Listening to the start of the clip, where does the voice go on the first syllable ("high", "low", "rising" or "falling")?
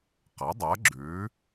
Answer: rising